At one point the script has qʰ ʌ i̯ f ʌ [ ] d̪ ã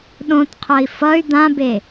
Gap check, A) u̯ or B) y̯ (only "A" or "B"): B